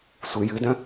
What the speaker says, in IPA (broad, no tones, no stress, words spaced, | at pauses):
sʷɨ jɨdœ̃